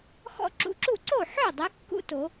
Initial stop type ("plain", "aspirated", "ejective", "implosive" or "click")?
click